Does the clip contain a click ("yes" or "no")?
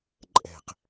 yes